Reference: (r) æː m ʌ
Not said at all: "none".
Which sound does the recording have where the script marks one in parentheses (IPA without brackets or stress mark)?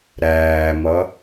ɾ